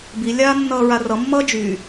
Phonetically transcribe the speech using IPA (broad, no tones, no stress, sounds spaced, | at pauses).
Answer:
b i lʲ aː nː ʌː ɹ a r ʌ mː ʌː d͡ʒ yː